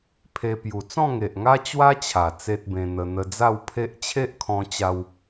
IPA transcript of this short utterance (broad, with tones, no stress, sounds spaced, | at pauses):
pʰ e˧ p j u˨˩ t͡s ɔ̃˥˧ ŋ e˨ ʔ ŋ a˦ t͡ɕ w a˦ t͡ɕʰ a˨˩ t͡s e˦ t̚ b ẽ˧ n̪ ə˧ n̪ ə˧ d͡z a˥˧ w pʰ e˦ ʔ t͡ɕʰ e˦ ʔ kʰ ɔ̃˧ t͡ɕ a˧ w